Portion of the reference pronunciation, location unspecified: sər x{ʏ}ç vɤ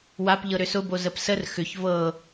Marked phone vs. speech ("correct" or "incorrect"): correct